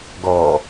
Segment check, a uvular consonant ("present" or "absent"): absent